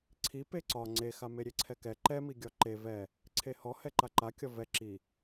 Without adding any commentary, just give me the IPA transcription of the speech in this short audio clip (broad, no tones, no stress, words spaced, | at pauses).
ǀʰi peǀɒ ŋ͡ǀexame ɾʲeǀʰɛkɛ ǃɛmiɡʲɒ ǃe vɛ | ǀʰehɔhɛ ǃaǃa kʲɒvɛ ǁi